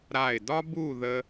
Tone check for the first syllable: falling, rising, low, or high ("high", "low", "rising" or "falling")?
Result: falling